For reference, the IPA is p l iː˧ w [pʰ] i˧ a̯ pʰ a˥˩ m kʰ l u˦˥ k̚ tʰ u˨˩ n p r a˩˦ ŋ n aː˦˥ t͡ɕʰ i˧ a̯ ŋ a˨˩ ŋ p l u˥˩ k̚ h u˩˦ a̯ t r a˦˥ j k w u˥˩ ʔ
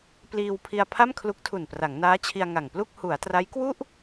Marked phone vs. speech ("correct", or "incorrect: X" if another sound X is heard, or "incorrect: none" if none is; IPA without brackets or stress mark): correct